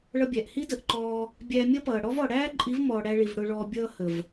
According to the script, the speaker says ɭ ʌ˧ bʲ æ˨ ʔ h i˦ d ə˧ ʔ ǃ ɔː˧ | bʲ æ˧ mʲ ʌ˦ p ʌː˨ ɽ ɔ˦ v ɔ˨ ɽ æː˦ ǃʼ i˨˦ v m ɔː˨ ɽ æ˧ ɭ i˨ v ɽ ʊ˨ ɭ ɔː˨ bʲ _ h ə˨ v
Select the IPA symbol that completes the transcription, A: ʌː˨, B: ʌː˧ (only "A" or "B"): B